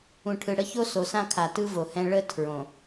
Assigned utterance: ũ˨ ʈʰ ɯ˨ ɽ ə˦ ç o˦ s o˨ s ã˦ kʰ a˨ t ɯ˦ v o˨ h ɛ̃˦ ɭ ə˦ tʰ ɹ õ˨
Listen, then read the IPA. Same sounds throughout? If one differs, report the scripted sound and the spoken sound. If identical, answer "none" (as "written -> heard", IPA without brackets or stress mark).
none